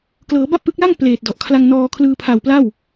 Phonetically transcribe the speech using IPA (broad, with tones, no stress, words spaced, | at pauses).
klɤː˩˦ba˥˩p̚ʔɯ˦˥k̚la˥˩ŋ pleː˨˩t̚dɔ˨˩ʔ kʰla˧ŋ nɔː˧kʰlɯː˧ pʰa˨˩wpla˥˩w